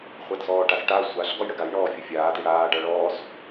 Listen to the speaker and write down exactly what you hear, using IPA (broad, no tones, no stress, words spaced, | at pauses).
χʷadsɔːʈasʈa sʷaɬ ɡɔjɽəɡaj ɳɔːfʲɘfʲaːd iɽaː ɖaɭɔːs